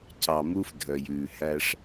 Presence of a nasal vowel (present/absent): absent